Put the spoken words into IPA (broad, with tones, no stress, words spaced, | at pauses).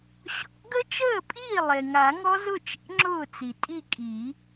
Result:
ɕɔ̰˨˩˦ɡə˦˥ t͡ʃəː˥˩pʼiː˥˩ lˠe˩ŋa˨˩˦ŋɔ˦˥ zʊ˥˩t͡ʃḛ˨˥ ŋ͡ǁʊː˥˩t͡si˩ tʼi˥˩kʼi˨˩˦